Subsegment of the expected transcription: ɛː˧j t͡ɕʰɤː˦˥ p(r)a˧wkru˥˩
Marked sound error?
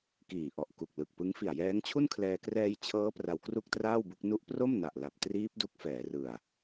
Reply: no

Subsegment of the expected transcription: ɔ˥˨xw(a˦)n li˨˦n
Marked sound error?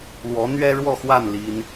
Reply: yes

